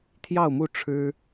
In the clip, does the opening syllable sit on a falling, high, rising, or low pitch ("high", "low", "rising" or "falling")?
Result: falling